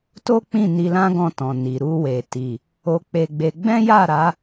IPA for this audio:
to˦k͡pĩ˦˨ ni˧lã˦ɡɔ̃˧tɔ̃˨ ni˨ ɾu˧we˨ ti˨ | o˧k͡pe˧ɡ͡be˧ ɡ͡bɛ̃˦ja˦˨ɾa˨˦

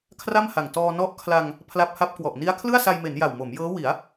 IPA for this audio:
kʰra˥˩mha˨˩ŋ tɔː˧nɔ˦˥ʔkʰla˧ŋ | pʰla˦˥p̚ha˦˥p̚kwɔ˨˩ʔ ni˦˥a̯kʰlɯ˥˩a̯sa˧jme˩˦n ja˨˩wmo˩˦mjɤː˦˥ wi˩˦a̯

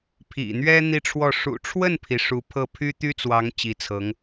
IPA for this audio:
pʰḭ˨˩n̪ɥɛ˥ n̪i˥˧ʈ͡ʂʰwɔ˥˩ ʂṵ˨˩ʈ͡ʂʰwə˥˩npʰi˩ ʂu˧˥pʰɤ˥˩ pʰy˥t̪y˥t͡swɑ˧˥ŋ t͡ɕi˧˥t͡sʰɤ˧˥ŋ

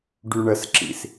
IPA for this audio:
ɖyɳəsǁḭs

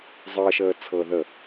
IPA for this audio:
zˤəːʃəː t͡sʰɤðə

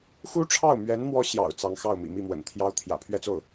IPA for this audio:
xu˥ʈ͡ʂʰɑ˥˩ʊ̯mɥɛ˧˥n mwɔ˥ɕjɑ̰˨˩ʊ̯ t͡sɑ˧˥ŋ xɑ˥˩ʊ̯mḭ˨˩ mi˥˩mwə̰˨˩nt̪ʰjɑ˥ʊ̯ t̪ʰjä̰˨˩pʰɥɛ˥˧t͡so˥˩ʊ̯

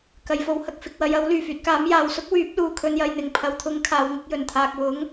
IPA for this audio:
kɐ˨j fo˨˧whɐ˨k̚ fɪ˨k̚wɐ˨˧jɐ˨˥w lyː˨˩fyː˨t̚kaː˨˥m jaː˨wsʊ˥k̚wyː˨˥p̚luː˨ kʰɵ˨njɐ˨j n̪ɪ˨˩ŋ pʰɐ˨wt̪ʰʊ˨˥ŋ kʰaː˨wŋɪ˧k̚jɵ˨˩nt̪ʰaː˨k̚ wʊ˨˥ŋ

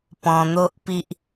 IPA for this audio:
pɔ̃˧n̪o˦ʔpi˦ʔ

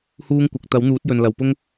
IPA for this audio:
huː˥ŋkʷɐ˨˥k̚ t̪ɐ˨˥wn̪uː˨˥t̚jɵ˨n lɐ˨wpʊ˥ŋ

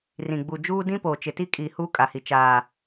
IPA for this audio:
rĩ˨ɡ͡bu˨d͡ʒuː˦ dĩ˦poː˨ t͡ʃɪ˨ti˦kʼiː˨ huː˦kʼa˨hi˨ t͡ʃaː˨

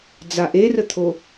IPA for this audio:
d͡zaʔerət̪ʰo

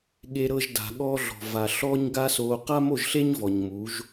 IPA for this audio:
ɠe˧ɾɤ˧ʒda̤˨ ɠɔː˦ɮɔ̤˨ va˨ ɬɔː˦ɲɡa˦soː˧ qa˦mo˦˨ʒɬe˦ɲ vɔ˨ɲmuː˨˦ʒ

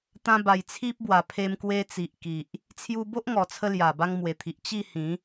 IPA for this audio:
t̪ã˧ ba˨˩jt͡sʰi˦p̚bwa˨˩pʰe˧m kwe˧t͡si˨ʔki˨ʔ | t͡sʰju˧bo˦ʔŋɔ˨˩t͡sʰə˧ lja˨˩ba˧ŋmwe˨˩t̪ʰi˨ʔ t͡ɕi˥˧hĩ˨˦

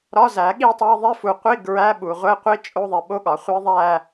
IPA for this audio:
ɾɒ˧˥˧zæ˨˩˦ɠi˥˧tˤe˧˥˧ ðˤe˧˥˧fu˨qʷi˧˥˧ ɡɹæ˧˥˧ɓu˨ʁʷe˧˥˧qʷi˦˥ t͡ʃʼo˧˥˧ðˤi˨ɓo˦˥ɠɒ˨˩˦ χʷi˦˥ðˤæ˥˧

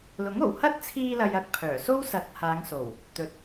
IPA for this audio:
lʊ˨˥ŋo˨˩w hɐ˥t̚t͡sʰiː˧lɐ˨jɐ˨k̚ pʰœː˨˩so˥w sɐ˨˥t̚ haː˨˧ŋso˨˩w | t̪ɵ˨t̚

